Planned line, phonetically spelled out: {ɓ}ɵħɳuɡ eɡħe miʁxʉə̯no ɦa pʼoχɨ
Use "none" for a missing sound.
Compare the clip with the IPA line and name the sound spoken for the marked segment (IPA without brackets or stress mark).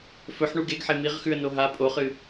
f